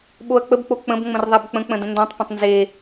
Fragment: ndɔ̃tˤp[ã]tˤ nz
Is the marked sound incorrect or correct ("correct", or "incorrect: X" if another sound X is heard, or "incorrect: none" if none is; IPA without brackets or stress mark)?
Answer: incorrect: ə̃